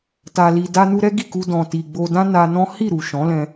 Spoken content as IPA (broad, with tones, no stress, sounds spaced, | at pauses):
t a˨ l i˨ d a˧ n u˧ ɾ ɛ˦ ɡ i˦˨ k u˧ d ɔ̃˨ t i˨ ɡ͡b o˧ d ã˦ n a˧ n ɔ̃˦ h i˦˨ ɾ u˨ ʃ ɔ̃˨˦ l ɛ̃˧